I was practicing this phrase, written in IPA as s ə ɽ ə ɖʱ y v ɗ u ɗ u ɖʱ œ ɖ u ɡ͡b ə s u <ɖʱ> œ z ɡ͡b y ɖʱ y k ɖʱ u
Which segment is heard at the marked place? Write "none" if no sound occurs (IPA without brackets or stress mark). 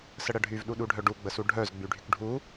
ɖʱ